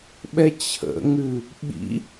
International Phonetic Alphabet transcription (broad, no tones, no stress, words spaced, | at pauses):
ɓɛt͡ɕʰə̰ŋʉ | ɓḭ